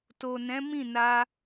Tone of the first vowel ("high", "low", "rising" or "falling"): low